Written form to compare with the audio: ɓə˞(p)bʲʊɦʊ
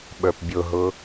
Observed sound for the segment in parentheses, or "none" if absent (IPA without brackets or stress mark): p